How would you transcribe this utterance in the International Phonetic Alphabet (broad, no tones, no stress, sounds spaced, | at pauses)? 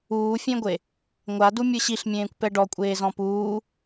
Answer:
uː fʲ ẽ ɡʷ e | ŋʷ a d u mʲ ɯ ɕ i ɬ mʲ ẽː kʷ p ɛ ɖ ɔ kʷʼ eː z ɔ̃ p uː